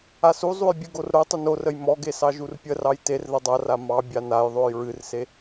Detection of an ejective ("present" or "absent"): absent